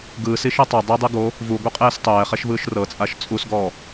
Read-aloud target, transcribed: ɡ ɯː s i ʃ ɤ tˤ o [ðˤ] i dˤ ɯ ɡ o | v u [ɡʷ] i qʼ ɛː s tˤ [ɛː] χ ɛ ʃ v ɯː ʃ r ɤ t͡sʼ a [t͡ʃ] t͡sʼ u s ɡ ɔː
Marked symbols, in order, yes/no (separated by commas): no, yes, yes, no